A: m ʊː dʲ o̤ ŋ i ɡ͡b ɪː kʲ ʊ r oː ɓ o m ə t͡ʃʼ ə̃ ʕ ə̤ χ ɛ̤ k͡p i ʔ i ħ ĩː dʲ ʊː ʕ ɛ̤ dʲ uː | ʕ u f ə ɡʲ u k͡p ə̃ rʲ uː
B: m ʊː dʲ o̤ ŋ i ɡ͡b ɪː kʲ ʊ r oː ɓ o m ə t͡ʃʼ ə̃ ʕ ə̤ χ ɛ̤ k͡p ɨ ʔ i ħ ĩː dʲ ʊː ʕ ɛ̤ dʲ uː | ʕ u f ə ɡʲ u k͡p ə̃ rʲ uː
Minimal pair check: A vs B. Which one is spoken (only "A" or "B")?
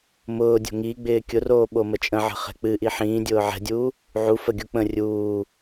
B